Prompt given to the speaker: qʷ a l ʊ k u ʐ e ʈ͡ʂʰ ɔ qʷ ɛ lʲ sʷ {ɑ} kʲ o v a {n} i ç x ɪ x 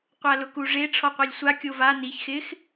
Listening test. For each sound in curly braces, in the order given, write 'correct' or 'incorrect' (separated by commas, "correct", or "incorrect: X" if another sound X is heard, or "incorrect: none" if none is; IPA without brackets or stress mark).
incorrect: a, correct